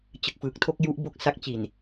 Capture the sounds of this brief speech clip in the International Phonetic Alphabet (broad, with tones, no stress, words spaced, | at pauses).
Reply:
t͡ɕɯ˨˩k̚fɯː˨˩k̚tʰo˥˩k̚ ju˦˥ʔbo˦˥k̚ sa˦˥k̚t͡ɕi˨˩n